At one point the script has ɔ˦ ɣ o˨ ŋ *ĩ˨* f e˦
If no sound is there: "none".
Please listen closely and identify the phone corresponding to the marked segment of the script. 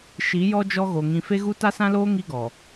ĩ˨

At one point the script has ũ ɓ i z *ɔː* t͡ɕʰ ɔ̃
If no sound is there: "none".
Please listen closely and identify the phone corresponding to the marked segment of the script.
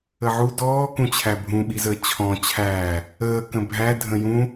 əː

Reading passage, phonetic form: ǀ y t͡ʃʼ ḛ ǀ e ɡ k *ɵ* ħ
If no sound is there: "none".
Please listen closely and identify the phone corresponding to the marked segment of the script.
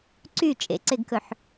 ɵ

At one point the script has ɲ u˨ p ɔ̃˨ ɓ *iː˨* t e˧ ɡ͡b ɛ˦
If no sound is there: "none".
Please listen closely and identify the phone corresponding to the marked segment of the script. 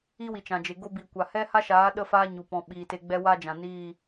iː˨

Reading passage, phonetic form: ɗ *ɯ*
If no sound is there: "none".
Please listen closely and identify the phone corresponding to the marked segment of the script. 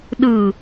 ɯ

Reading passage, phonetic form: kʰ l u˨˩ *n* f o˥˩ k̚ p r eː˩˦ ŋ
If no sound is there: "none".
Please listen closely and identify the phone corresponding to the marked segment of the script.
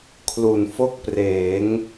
n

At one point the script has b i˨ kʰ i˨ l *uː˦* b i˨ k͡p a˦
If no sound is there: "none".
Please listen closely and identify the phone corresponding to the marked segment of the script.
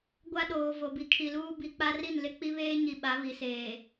uː˦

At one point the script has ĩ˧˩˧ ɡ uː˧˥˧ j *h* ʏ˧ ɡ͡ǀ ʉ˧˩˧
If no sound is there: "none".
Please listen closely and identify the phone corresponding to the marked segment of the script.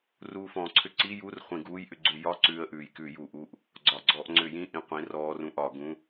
ʔ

